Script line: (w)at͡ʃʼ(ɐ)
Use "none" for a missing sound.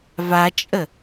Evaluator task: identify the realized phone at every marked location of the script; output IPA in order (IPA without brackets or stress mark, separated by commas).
v, ə